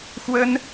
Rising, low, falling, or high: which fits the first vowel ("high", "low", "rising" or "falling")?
high